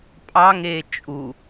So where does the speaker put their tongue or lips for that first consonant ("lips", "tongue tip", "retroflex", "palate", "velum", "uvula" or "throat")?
lips